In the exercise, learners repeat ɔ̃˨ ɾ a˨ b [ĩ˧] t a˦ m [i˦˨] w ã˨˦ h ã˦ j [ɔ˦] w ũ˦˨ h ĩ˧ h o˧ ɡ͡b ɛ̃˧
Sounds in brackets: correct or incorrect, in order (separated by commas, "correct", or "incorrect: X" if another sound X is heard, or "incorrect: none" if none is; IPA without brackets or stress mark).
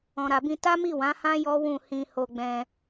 correct, correct, correct